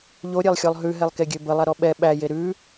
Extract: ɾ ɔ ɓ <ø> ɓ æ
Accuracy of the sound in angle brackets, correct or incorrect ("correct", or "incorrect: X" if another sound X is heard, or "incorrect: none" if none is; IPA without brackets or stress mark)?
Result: incorrect: ɛ